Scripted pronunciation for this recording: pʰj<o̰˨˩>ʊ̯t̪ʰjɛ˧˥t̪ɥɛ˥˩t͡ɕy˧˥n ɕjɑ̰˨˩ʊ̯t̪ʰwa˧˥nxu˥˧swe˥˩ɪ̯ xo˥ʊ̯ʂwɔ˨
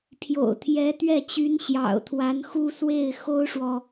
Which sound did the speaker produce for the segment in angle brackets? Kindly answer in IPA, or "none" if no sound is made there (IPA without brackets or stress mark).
o̰˨˩